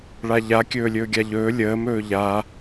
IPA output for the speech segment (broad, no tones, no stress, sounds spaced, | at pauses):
ɭ a ʎ a kʲ ɵː lʲ ɵː ɡʲ a ʎ ɵː lʲ əː m ɵː ʎ a